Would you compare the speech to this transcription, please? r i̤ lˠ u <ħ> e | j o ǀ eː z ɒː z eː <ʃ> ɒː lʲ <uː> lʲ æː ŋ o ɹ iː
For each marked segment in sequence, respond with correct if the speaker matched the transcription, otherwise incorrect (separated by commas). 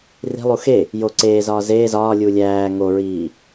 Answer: incorrect, incorrect, correct